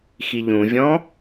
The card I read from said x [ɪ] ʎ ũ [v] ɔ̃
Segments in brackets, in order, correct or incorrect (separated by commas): incorrect, incorrect